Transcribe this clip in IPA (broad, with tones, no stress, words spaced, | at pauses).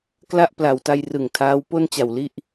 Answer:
kla˥˩ʔpla˨˩wta˧j rɯ˨˩ŋtʰaː˦˥w po˥˩nt͡ɕa˨˩wli˦˥ʔ